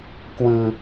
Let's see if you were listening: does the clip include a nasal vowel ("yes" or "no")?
no